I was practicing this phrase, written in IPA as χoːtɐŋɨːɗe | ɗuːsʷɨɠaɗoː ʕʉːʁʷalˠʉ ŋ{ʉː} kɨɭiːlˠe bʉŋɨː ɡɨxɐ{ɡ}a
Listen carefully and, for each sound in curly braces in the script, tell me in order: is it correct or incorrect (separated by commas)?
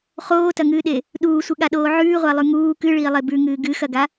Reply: incorrect, correct